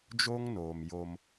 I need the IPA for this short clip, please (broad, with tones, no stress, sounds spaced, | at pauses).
d͡ʒ o˦ ŋ n oː˨ m j o˦ m